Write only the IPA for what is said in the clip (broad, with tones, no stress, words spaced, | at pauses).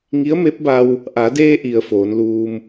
ŋi˧˥ə̯me˧˥p̚ba˧w | ʔa˩˧deː˧ʔi˩ə̯ foː˩˧nluː˧m